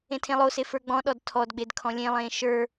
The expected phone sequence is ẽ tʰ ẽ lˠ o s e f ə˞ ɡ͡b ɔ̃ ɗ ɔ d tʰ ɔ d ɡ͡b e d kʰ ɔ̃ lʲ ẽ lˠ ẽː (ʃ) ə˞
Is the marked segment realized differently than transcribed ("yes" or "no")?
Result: no